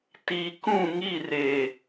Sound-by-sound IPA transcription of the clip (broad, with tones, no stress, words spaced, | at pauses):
ti˨kũ˦˨ŋi˦˨ re˨